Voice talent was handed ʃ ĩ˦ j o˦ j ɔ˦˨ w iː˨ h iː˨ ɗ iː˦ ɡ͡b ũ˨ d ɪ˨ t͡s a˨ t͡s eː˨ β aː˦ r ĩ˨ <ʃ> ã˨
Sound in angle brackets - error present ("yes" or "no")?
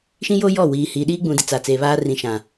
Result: no